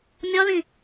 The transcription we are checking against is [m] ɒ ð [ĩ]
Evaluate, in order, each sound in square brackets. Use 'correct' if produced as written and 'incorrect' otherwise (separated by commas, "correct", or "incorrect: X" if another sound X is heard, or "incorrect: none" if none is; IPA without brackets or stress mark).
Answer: incorrect: mʲ, correct